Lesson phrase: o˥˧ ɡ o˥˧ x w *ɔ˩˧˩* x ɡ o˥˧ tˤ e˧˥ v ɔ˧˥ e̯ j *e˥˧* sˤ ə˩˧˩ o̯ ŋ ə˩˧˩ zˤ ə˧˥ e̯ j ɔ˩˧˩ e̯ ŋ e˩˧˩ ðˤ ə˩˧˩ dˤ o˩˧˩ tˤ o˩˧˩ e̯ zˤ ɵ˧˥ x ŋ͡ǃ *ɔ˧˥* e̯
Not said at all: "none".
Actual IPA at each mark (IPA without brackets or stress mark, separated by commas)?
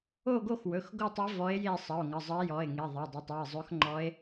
ɵ˩˧˩, e˥˧, ɔ˧˥